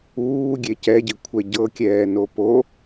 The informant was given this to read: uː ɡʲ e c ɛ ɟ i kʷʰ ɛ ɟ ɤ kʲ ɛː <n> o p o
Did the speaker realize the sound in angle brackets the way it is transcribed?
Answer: yes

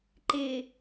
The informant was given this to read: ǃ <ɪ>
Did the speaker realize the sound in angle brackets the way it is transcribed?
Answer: yes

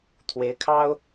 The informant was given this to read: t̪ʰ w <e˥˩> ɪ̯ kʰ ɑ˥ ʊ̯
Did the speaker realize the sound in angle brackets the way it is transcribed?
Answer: no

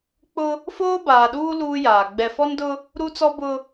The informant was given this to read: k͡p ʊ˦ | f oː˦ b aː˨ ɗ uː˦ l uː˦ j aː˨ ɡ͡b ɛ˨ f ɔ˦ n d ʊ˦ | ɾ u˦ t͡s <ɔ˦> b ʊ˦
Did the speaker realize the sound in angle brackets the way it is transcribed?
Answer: yes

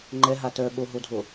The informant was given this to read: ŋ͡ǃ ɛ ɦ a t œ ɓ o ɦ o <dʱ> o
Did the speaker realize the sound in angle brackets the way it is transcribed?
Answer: yes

